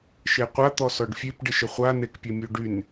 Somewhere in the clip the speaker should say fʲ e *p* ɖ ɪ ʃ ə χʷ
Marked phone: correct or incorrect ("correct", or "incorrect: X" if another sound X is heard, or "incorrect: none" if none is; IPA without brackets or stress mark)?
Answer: correct